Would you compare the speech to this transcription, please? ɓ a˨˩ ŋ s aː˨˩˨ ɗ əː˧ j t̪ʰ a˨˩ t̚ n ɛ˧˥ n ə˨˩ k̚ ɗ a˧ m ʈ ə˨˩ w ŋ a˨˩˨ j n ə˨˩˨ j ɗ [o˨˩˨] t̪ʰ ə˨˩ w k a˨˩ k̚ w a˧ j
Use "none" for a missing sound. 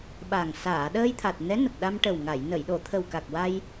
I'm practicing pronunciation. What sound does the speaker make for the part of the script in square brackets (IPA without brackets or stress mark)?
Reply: o˨˩˨